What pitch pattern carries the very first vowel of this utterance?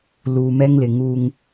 low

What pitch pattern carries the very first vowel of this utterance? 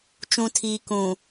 low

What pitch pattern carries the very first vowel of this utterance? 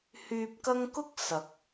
low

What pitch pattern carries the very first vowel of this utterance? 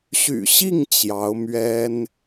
low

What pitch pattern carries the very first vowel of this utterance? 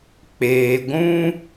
low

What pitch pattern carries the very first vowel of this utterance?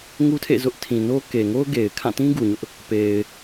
high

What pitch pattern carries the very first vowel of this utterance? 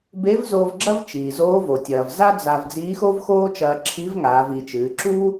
rising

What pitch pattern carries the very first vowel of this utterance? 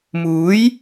rising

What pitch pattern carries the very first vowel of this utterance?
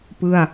falling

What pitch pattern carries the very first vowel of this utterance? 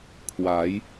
rising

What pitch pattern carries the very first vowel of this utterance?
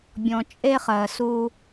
low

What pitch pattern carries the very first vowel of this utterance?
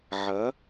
rising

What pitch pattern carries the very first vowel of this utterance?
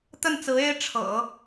falling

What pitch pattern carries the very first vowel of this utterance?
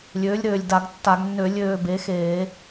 rising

